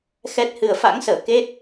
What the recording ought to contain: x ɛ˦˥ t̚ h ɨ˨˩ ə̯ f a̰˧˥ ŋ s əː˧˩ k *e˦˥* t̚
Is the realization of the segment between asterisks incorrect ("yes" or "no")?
no